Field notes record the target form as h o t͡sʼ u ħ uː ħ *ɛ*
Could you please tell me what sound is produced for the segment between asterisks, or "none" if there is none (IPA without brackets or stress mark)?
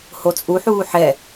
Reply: ɛ